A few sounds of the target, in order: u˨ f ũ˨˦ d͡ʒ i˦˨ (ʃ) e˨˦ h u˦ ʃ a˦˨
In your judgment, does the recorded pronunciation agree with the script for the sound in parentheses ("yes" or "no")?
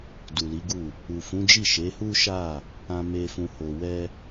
yes